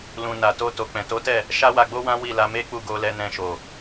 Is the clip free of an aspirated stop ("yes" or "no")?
yes